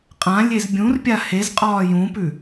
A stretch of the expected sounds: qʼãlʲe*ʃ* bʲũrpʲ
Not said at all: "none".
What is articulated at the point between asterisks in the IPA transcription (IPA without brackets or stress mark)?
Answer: z